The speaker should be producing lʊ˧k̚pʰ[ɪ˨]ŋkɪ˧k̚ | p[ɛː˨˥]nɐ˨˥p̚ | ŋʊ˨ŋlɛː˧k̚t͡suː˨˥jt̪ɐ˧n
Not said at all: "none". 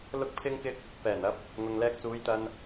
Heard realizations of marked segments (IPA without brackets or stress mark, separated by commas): ɪ˧, ɛː˨˩